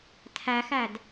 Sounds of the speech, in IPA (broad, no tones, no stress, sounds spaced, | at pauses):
tʰ æ x æ d